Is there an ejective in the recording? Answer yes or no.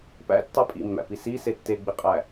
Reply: yes